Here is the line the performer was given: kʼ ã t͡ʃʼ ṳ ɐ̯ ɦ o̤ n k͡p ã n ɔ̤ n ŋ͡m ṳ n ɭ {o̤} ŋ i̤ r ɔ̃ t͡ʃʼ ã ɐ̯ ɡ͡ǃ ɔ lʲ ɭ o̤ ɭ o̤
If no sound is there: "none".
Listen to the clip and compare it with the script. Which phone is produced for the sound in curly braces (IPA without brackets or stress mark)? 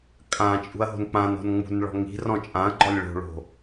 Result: ɔ̤